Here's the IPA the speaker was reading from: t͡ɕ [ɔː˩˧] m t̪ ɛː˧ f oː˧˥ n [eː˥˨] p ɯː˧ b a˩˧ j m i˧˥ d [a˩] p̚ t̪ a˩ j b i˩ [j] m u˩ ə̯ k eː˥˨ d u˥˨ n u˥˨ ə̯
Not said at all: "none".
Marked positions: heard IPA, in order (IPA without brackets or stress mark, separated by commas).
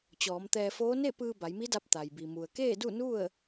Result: ɔː˩˧, e˥˨, a˧, none